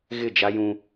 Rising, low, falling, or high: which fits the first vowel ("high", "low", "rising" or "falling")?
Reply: falling